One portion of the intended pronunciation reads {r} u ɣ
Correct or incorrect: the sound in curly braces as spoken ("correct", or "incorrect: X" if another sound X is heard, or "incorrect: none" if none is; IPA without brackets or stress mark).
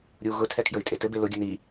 incorrect: ɾʲ